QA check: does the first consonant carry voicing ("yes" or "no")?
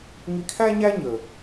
yes